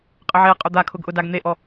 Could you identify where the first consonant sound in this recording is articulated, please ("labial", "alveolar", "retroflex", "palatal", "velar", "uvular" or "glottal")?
uvular